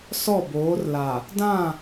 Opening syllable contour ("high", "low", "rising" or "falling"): falling